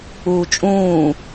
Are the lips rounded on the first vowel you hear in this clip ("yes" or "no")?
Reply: yes